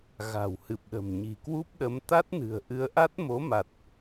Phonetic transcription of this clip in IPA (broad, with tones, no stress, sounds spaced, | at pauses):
ɣ a̤˨˩ w h ɨ˨˩ p̚ ɗ ə̤˨˩ m ɲ i̤˨˩ k w u˦˥ p̚ ɗ ə˨˦ m t̪ a˦˥ t̚ n ɨ̤˨˩ ə̯ ʔ ɨ˨˦ ə̯ ʔ a˦˥ t̚ m o˨˦ m a˨˩ t̚